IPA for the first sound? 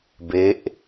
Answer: b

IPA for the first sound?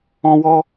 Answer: ɔ̃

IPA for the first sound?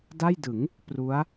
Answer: d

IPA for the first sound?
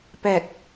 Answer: p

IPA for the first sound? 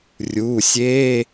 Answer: rʲ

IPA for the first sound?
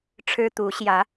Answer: ʈ͡ʂʰ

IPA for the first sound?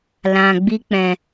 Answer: l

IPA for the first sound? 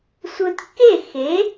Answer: sʷ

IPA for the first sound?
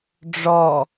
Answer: ɖ͡ʐ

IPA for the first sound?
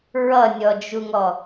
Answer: ɹ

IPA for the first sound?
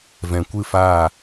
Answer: v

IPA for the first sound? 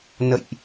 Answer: n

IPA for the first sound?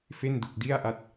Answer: f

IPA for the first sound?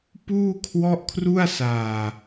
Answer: p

